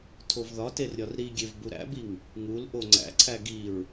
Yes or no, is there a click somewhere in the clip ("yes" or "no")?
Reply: yes